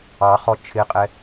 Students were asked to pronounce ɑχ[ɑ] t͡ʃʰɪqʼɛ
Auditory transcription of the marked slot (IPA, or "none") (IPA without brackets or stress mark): ɔ